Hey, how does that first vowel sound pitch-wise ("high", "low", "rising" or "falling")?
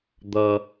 high